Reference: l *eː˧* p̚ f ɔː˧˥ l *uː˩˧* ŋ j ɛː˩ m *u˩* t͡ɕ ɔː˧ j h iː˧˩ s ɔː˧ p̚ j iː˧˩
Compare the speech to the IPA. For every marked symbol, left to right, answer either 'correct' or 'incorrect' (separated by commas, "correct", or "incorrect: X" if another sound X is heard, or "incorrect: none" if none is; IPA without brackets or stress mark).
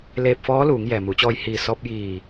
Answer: correct, correct, incorrect: u˩˧